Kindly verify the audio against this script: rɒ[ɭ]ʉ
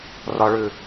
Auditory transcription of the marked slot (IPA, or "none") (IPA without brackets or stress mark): ɭ